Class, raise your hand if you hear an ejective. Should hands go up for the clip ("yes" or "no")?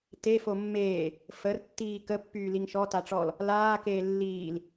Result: no